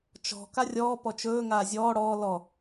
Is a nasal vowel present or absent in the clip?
absent